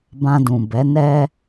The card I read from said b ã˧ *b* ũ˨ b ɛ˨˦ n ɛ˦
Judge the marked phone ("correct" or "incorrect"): incorrect